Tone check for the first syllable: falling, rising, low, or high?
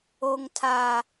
high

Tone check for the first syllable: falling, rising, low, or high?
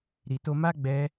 low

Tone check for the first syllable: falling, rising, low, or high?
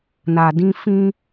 low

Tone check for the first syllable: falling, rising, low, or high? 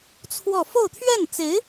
falling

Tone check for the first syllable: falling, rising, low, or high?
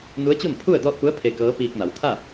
rising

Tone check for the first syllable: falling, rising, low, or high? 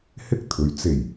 high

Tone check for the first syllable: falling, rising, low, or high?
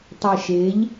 low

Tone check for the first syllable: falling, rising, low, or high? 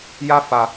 high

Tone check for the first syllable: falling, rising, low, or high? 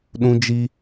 high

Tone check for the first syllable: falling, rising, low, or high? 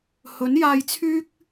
rising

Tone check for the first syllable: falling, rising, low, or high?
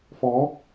rising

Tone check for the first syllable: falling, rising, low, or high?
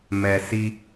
low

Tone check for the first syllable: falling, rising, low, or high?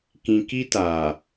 low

